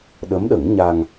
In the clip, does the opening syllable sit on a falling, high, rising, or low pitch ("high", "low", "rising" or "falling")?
rising